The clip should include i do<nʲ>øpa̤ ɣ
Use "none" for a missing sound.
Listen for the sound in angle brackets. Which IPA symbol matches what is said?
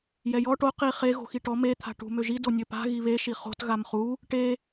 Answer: nʲ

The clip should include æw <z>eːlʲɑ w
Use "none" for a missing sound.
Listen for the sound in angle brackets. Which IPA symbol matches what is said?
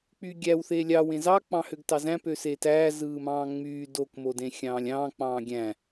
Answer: θ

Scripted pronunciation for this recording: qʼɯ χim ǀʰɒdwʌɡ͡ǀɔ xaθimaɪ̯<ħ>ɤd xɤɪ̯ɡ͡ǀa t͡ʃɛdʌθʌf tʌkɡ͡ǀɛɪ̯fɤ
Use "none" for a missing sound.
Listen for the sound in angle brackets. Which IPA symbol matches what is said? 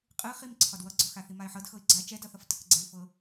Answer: ħ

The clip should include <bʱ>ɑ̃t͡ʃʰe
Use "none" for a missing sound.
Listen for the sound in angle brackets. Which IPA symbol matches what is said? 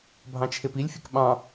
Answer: bʱ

